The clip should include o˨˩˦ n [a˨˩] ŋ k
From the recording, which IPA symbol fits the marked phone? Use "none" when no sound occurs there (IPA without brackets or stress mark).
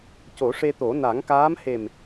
a˨˩˦